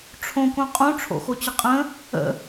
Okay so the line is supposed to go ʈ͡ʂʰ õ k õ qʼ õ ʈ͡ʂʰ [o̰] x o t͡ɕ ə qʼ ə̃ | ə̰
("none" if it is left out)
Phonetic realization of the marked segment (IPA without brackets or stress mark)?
o̰